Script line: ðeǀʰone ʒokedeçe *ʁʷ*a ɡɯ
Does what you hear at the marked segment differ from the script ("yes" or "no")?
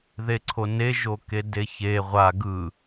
no